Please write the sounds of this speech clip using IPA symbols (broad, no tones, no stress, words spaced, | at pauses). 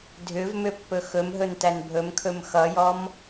dʱʏvmʏpːɵ xɵmɦɵntæn bʱɵmkʰɵm xʌjɔm